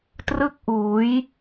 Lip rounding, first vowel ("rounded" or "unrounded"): unrounded